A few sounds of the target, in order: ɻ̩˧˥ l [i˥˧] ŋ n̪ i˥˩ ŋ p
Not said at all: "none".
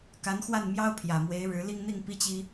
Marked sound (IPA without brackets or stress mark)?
i˥˧